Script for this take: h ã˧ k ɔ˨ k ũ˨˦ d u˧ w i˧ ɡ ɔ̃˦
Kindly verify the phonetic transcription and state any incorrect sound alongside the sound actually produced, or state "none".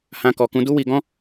u˧ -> u˦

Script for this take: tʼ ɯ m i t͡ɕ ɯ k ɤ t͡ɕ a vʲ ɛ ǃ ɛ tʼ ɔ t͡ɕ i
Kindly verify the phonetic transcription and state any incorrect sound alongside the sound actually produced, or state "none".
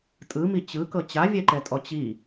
none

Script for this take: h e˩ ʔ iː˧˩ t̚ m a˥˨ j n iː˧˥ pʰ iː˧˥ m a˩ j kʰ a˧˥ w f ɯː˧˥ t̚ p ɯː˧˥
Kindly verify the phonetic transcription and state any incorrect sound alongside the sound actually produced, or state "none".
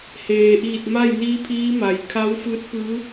e˩ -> eː˩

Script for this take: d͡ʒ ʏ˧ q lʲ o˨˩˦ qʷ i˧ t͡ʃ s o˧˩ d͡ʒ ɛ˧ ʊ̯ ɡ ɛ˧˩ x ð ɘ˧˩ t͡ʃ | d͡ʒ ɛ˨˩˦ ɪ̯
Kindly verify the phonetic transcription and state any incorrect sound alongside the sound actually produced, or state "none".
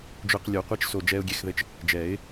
ɡ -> ɡʲ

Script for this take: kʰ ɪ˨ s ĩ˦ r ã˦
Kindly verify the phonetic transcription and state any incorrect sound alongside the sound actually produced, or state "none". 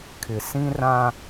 none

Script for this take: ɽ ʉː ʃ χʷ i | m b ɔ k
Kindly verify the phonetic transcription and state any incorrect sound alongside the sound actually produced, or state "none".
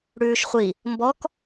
none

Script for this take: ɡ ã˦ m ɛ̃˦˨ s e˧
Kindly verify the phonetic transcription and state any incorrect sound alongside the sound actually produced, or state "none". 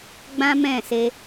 ɡ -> ɡ͡b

